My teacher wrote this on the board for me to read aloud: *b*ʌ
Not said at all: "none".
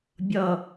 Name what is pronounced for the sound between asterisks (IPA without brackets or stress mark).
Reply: bʲ